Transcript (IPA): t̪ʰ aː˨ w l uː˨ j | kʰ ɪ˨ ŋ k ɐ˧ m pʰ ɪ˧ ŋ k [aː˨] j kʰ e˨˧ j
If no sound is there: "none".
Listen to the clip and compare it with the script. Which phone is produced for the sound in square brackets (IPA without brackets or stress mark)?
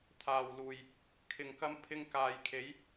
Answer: aː˨